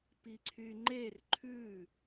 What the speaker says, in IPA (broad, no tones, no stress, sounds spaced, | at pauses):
p i ǀʰ y ŋ͡ǃ e r ǃʰ ʉ